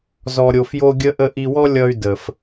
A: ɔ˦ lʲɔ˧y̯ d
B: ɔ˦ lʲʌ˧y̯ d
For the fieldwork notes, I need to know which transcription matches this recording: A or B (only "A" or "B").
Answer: B